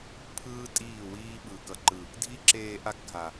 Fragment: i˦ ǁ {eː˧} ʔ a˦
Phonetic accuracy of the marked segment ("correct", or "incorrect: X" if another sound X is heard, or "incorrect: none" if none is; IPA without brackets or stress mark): correct